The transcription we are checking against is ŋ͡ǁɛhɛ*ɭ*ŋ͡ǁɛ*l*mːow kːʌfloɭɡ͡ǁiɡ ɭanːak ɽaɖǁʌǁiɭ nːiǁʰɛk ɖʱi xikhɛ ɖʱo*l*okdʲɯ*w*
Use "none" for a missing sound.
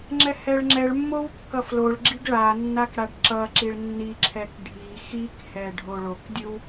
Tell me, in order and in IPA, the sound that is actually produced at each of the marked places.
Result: ɭ, ɭ, ɭ, w

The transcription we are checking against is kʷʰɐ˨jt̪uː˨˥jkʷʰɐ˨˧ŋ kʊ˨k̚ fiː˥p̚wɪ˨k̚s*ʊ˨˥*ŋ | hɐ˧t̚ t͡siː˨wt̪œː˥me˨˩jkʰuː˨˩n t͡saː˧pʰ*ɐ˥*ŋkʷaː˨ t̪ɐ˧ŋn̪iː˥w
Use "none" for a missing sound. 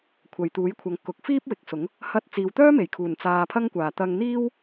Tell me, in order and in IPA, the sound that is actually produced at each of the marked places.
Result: ʊ˨˥, ɐ˥

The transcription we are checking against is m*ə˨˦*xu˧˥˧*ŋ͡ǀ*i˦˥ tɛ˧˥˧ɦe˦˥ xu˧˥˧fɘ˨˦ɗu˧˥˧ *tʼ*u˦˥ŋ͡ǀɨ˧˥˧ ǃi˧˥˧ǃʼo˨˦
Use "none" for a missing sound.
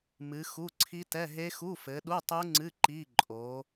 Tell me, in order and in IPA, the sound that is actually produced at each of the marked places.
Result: ɨ˨˦, ǀʰ, tˤ

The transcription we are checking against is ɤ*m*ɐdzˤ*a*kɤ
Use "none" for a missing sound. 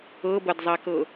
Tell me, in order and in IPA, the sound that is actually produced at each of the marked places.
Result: b, a

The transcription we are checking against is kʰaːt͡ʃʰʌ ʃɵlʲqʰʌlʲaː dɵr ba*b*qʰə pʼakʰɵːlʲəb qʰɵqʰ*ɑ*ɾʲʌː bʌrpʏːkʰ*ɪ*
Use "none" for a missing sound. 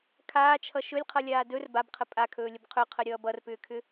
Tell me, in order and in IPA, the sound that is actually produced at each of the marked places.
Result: b, ə, ʏ

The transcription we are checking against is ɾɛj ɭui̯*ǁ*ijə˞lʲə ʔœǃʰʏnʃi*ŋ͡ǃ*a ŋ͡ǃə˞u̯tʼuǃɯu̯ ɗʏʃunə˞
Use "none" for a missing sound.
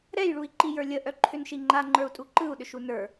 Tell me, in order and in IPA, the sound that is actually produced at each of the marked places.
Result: ǃ, ŋ͡ǃ

